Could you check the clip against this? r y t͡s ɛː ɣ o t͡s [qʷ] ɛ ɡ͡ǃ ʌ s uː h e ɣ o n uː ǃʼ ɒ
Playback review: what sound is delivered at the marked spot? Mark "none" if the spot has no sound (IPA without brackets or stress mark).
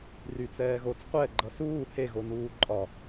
qʷ